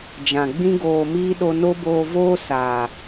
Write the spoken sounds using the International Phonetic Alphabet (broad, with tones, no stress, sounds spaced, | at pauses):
d͡ʒ ã˨ ɡ͡b ĩ˦ ɡ oː˧ m iː˦ ɗ o˧ n o˦ b oː˧ v oː˦ s aː˨